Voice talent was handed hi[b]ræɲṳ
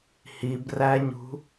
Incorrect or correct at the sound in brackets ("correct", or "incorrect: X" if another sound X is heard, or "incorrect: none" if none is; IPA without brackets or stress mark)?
correct